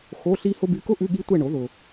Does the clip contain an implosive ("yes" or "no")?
yes